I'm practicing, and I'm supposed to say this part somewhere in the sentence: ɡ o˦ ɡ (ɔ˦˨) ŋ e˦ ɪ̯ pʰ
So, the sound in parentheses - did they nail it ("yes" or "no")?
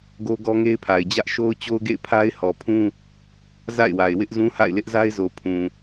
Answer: no